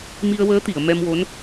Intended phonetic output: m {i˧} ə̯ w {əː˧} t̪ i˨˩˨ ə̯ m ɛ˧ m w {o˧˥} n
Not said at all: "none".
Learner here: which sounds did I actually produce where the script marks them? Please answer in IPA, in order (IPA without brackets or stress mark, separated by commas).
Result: i˧, əː˧˥, o˧˥